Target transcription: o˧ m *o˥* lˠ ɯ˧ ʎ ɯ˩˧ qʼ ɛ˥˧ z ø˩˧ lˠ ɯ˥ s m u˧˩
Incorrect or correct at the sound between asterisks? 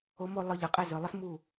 incorrect: o˥˧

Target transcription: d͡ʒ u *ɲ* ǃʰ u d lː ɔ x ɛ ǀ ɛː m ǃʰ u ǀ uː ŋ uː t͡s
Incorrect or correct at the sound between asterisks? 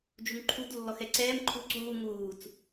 incorrect: ŋ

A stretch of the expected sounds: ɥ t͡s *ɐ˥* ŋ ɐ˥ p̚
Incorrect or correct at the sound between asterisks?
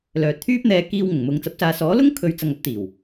incorrect: ɐ˨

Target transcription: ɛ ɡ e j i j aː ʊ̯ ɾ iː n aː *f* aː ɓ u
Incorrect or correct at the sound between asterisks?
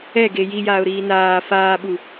correct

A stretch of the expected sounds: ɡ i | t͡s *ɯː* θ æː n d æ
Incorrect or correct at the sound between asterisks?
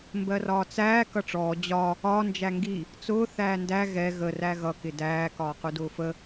incorrect: ʊː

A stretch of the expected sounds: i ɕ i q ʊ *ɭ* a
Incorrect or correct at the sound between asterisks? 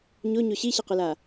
incorrect: l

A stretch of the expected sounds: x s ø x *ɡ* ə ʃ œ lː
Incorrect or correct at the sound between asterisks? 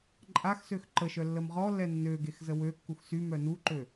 incorrect: ǃ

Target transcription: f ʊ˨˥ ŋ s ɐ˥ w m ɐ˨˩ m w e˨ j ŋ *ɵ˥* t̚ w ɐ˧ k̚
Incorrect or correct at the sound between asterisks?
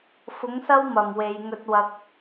incorrect: ɵ˧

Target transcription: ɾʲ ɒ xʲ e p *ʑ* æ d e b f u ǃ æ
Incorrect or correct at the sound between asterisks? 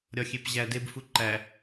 correct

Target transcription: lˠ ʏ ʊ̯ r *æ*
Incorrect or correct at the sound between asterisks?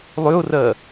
incorrect: ɜ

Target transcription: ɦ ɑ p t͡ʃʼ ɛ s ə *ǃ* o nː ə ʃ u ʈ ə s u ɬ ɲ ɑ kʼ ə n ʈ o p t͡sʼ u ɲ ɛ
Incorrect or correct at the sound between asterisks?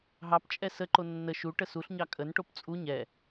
correct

